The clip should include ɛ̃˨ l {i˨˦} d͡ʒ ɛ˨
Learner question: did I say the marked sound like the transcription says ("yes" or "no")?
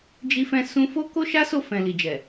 no